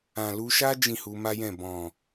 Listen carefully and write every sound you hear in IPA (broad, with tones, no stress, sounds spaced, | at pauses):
ã˨ l u˧ ʃ a˦ d͡ʒ ĩ˦˨ h u˧ m a˦ j ɛ̃˦˨ b ɔ̃˨